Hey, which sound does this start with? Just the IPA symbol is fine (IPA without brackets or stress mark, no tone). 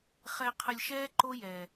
χ